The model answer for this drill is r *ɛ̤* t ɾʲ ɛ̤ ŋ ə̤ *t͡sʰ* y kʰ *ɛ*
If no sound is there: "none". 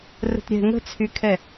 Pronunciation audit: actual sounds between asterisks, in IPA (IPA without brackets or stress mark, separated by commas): ə̤, t͡sʰ, ɛ